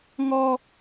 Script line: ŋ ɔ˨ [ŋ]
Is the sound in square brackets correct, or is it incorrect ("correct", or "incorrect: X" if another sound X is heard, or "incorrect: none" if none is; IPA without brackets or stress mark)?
incorrect: none